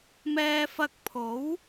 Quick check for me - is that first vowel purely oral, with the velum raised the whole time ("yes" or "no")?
yes